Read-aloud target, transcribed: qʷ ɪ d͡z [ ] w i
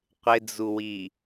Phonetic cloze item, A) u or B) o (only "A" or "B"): A